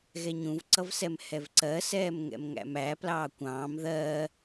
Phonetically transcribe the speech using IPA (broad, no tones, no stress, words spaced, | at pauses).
ɣɛɲũvǀʌvsɛm hɛvǀɜsɛːm ŋɛ̰mŋæ̰mæ plɑːkʷɑ̃ːm ðɜ